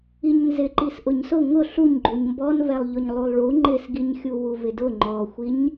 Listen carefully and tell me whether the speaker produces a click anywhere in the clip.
yes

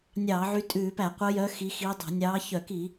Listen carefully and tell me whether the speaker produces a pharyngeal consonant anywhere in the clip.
yes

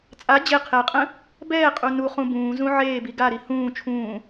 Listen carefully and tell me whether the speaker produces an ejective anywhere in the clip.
yes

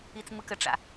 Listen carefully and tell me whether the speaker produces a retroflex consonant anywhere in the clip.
yes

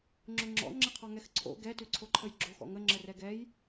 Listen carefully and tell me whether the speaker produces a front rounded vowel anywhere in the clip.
no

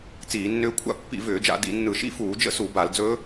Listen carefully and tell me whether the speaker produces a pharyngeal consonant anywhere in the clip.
no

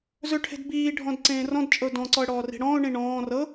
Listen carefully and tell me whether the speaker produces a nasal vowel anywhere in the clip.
yes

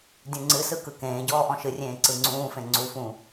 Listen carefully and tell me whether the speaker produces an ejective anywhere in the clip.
no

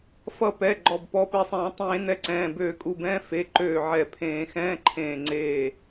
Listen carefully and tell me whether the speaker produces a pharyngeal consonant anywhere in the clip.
yes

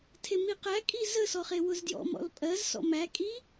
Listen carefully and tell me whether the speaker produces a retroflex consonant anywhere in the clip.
no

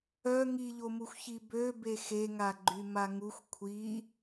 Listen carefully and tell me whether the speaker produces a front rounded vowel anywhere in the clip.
yes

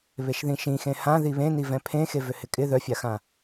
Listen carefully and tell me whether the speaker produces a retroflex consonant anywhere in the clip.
no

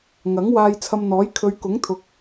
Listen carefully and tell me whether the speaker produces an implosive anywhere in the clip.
no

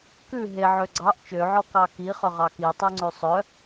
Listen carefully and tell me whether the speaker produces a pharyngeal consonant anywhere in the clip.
yes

